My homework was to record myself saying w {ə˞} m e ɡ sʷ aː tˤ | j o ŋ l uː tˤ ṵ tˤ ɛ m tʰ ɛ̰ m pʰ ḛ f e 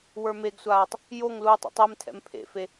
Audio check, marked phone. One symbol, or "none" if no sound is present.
ə˞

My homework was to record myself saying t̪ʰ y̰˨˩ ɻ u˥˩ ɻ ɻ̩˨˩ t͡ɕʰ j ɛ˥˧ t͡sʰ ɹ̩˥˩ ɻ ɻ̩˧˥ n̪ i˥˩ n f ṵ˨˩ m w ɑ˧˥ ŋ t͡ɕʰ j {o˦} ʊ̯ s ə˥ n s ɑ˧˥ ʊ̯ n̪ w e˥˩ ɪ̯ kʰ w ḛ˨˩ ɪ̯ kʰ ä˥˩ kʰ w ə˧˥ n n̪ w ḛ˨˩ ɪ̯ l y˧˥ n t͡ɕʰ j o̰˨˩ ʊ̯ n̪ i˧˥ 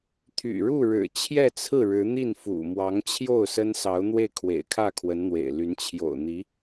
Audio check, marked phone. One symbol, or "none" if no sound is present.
o˥˩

